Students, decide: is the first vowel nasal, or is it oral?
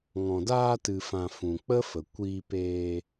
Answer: nasal